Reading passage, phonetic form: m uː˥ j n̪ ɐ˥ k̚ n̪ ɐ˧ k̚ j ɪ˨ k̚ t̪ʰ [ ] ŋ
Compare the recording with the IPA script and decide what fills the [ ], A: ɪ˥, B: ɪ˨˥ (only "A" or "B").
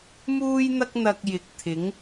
B